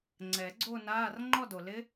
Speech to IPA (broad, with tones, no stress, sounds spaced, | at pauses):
ŋ͡ǀ ɛ˨˩˦ ɡ͡ǀ o˥˧ n aː˧˥˧ r ŋ͡ǃ ɔ˥˧ d o˨ l ɪ˦˥